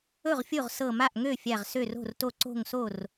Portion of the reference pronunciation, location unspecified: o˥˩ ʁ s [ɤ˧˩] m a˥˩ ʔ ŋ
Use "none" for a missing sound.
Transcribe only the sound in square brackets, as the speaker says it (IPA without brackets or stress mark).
ɤ˧˩